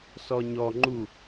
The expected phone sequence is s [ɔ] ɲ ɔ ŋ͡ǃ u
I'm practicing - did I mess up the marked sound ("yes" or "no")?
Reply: no